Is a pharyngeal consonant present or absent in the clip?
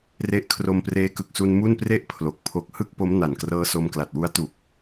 absent